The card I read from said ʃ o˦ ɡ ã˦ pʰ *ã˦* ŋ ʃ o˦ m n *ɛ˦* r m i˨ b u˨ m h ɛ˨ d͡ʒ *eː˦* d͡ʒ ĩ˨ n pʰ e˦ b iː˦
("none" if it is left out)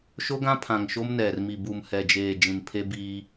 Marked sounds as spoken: ã˨, ɛ˨, eː˨

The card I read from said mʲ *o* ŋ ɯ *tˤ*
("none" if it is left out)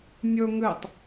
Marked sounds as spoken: o, tˤ

